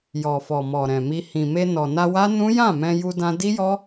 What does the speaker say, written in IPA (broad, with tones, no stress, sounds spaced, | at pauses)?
j ɔ˨ f ɔ˨ m ɔ˨ ɾ ɛ̃˨ m i˧ h ĩ˨ m e˧ n ɔ˨ n a˧ w a˦ n ũ˦ j ã˦˨ m ɛ̃˧ j u˧ d ã˧ d i˦ j ɔ˦